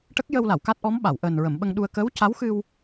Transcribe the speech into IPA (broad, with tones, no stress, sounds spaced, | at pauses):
ʈ ə˦˥ k̚ j ə˧ w l a˨˩˨ w k a˦˥ t̚ ʔ ɔ˧˥ m ɓ a˨˩˨ w ʔ əː˨˩ n ɹ ə˨˩˨ m ɓ ə˧ ŋ ɗ u˧ ə̯ k əː˧˥ w c a˧˥ w x ɨ˧ w